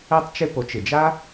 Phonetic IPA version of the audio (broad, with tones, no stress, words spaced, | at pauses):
ɛ˧tˤt͡ʃɪ˧ po˩˥t͡ʃɪ˩d͡ʒa˥